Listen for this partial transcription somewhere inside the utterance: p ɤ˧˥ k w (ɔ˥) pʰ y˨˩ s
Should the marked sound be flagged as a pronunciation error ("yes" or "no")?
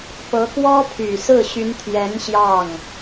no